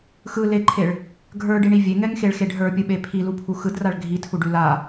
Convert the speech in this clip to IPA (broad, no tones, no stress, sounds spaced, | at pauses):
x ɯ l e ǃʰ e ɭ | ɡʱ ə˞ ɖ i ɳ i vʲ e ŋ ɛ ŋ x e ɭ x e ɖ ɦ ə˞ pʲ ɯ ɓ e pʰ i l u pʰ u x ɯ d r a ɭ ɡʱ i tʰ u ɖ ʉ l a